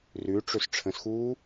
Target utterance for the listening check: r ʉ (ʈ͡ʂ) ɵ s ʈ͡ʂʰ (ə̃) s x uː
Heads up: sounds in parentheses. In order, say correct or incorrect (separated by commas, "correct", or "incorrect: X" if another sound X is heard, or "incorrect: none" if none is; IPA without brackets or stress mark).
correct, correct